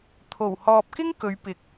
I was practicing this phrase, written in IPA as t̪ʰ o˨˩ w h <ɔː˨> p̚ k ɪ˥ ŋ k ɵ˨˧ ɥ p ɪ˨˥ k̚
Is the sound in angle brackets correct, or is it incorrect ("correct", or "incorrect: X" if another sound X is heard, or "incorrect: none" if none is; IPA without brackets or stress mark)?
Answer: correct